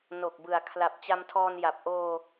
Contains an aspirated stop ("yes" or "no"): yes